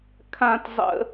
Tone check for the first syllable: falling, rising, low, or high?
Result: high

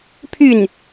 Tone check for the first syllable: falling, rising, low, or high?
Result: falling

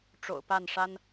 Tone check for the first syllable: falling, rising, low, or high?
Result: low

